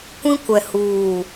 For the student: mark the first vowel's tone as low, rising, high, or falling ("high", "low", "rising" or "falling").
high